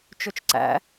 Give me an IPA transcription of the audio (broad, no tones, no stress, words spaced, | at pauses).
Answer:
t͡ʃɵt͡ʃǀæ̰